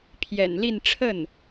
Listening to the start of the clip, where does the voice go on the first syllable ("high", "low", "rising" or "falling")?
low